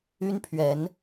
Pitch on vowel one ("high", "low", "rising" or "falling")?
high